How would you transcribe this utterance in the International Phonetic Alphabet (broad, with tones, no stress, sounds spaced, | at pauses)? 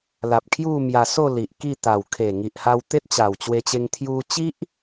l a˨ p̚ kʰ j u˥˧ m j a˧ s o˥˧ l i˨ ʔ k i˥˧ t̪ a˨˩ w kʰ e˨˩ ŋ i˨ ʔ h a˧ w t̪ e˦ t̚ t͡ɕ a˨˩ w t͡ɕ w e˧ t͡ɕ e˧ ŋ t̪ʰ j u˧ t͡ɕ i˦ ʔ